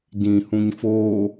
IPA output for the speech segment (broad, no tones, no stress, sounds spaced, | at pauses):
d ĩ h ũ ɲ f oː